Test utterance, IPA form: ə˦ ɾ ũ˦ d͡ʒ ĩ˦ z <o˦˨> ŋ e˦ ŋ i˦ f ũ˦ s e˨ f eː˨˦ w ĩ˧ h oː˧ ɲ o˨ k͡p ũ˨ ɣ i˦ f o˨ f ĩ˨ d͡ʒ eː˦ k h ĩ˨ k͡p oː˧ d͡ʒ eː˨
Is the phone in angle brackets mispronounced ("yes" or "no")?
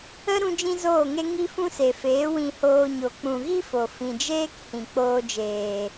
yes